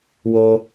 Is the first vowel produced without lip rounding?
no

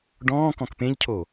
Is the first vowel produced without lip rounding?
no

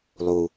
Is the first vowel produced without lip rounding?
no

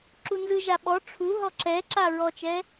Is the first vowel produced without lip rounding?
no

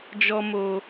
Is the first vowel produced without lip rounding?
no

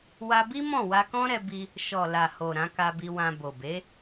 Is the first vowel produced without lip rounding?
yes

